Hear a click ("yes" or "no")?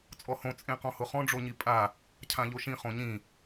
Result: no